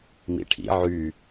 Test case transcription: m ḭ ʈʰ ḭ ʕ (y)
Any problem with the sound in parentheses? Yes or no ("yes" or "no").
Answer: no